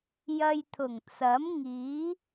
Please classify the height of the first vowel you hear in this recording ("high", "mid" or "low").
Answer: low